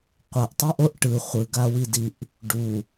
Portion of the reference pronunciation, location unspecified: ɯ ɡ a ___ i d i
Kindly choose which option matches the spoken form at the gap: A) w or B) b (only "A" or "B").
A